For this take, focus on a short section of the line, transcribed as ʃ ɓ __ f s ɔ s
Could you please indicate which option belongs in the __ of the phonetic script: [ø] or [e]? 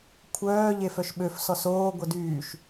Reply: ø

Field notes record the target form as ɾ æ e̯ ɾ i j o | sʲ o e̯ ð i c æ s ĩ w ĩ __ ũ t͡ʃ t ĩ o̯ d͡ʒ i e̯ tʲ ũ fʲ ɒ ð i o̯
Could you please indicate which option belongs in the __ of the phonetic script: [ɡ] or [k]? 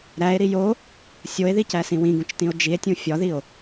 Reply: ɡ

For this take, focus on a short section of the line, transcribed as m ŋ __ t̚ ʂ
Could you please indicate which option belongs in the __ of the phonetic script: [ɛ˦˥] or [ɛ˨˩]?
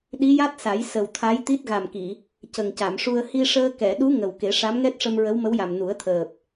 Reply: ɛ˦˥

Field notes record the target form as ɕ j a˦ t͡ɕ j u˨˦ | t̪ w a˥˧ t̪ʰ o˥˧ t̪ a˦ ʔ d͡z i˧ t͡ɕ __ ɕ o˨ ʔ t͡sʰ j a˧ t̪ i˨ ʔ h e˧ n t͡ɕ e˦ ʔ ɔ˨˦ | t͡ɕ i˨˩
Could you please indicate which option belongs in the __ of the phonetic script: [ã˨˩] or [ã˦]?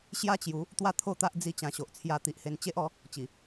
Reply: ã˨˩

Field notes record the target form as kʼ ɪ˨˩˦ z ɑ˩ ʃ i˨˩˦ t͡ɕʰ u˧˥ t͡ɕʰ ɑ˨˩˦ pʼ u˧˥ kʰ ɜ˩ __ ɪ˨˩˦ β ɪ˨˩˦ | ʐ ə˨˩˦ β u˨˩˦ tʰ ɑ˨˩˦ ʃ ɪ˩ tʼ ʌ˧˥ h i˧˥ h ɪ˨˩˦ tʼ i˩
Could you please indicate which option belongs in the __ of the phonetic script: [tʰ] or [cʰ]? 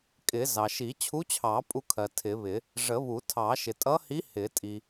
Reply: tʰ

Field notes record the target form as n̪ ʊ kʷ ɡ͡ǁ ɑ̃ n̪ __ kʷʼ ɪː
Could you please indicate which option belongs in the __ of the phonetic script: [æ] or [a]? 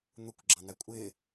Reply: æ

